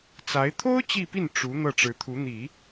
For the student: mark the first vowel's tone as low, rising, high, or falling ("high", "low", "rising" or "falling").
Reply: rising